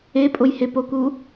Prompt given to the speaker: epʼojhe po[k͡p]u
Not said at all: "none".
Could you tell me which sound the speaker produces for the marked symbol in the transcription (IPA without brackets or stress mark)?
k